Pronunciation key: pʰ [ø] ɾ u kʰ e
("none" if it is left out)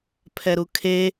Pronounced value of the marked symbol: ɛ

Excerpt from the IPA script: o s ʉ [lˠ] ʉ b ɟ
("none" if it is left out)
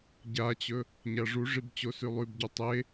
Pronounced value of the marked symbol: lˠ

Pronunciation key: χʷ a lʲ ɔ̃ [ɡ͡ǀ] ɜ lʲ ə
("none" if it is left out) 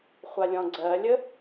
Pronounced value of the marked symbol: ɡ͡ǀ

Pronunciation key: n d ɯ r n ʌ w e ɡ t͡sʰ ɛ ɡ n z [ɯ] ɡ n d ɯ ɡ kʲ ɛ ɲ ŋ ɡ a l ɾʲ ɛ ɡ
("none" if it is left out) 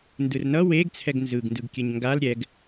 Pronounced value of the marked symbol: ɯ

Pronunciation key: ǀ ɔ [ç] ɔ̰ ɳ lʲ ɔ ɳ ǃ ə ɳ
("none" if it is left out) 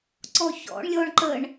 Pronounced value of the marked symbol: ç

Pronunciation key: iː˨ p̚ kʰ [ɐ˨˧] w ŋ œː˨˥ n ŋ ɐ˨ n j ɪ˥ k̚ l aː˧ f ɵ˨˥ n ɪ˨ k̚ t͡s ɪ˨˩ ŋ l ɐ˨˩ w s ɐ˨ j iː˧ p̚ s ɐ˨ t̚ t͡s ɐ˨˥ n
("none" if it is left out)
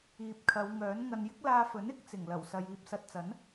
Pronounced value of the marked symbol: ɐ˨˧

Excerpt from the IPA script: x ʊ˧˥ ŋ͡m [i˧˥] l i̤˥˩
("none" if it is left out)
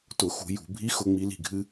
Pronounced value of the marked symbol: i˧˥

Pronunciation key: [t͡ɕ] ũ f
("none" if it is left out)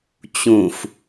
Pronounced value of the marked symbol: t͡ɕ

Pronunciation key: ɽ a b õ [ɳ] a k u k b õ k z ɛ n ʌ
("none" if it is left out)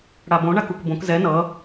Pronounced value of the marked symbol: ɳ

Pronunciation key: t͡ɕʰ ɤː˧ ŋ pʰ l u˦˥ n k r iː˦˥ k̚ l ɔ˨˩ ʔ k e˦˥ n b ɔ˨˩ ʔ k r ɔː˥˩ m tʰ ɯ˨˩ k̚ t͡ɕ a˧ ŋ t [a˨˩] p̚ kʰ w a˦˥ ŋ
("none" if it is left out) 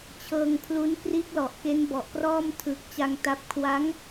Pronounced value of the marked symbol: a˦˥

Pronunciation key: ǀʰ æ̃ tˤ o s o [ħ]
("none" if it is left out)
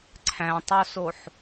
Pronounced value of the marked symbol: ħ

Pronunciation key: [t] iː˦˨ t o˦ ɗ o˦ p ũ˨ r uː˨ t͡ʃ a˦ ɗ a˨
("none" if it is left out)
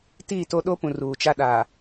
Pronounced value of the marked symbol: t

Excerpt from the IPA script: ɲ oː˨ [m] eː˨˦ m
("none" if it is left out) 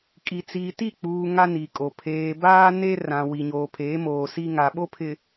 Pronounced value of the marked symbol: pʰ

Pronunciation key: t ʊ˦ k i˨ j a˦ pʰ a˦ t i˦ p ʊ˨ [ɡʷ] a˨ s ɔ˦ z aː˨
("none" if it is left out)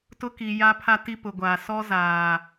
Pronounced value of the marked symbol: ɡʷ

